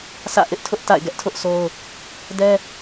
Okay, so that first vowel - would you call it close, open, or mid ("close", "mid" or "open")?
open